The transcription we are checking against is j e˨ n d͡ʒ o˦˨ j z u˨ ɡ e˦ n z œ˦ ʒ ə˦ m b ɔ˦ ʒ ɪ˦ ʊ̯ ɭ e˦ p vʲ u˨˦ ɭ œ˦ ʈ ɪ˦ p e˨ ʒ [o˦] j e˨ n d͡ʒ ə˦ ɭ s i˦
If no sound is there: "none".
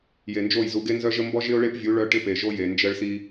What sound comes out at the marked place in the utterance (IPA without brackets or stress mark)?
o˦